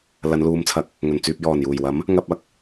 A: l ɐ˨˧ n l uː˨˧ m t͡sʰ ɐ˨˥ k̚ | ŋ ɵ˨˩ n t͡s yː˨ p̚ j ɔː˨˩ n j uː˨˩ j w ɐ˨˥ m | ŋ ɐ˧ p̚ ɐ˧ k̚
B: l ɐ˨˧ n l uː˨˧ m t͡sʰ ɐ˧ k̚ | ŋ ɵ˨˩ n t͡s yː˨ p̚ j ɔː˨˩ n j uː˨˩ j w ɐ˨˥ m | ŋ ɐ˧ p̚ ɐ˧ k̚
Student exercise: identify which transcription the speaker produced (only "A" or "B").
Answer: A